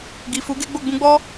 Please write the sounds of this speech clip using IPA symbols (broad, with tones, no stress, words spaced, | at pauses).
ɡi˨fu˨˦ɡe˦ ɡ͡bo˦˨ɡ͡bũ˧ɡ͡bɔ˦